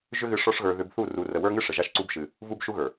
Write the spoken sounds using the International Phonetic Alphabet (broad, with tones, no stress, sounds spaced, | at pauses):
ʒ ʏ˦ ɣ ɨ˧ ʂ ɔ˦ ʂ ɣ ə˞˧ ð ʏ˧ b θ u˦˨ r u˨ r ə˨ w ə˞˦ ŋ ɨ˦ ʂ ə˨ ʒ a˦˨ ʃ ǀ u˦ b ʃ ɨ˧ | v u˦ b ʃ u˦ ɣ ə˞˨